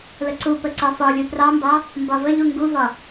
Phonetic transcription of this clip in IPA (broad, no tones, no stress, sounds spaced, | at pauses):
l ə ǀ u p ə ǀ ɒ f ɒ lʲ u p r ɑ m b ɑ | m b ɒ v ə ʎ u ŋ ɡ u v ɒ